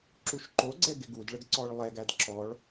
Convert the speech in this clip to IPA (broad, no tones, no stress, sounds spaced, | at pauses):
ǁ u ʃ ǃ o ɡ͡ǀ ɛ ɡ ɪ ɡ u d ɭ ə ɡ ǀ ɔ ɭ lˠ ɛ ɡ æ d ǁ ɔ ɭ